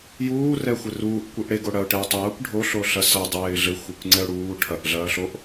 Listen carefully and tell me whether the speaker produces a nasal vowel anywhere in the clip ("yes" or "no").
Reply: no